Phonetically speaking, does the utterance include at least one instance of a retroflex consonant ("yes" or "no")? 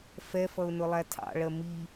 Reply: yes